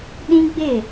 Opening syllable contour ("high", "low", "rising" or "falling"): high